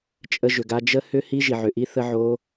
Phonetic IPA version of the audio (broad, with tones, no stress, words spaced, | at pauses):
t͡ʃʼə˦˥ʒʏ˨ɡa˦˥ d͡ʒə˦˥hʏ˦˥ hi˦˥ʒi˨ʕʏ˨ʔi˦˥ θə˦˥ʕo˦˥